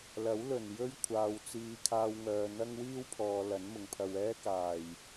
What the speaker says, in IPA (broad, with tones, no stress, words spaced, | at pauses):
lɐ˨˥wlɵ˨˩n jɵ˥ɥkʷʰaː˨w t͡siː˨˧kʰaː˧wŋœː˨n̪ɐ˥ŋ wiː˥wpʰɔː˨ lɐ˨˥nmʊ˨ŋpʰɐ˧w ɛː˥kaː˨˩j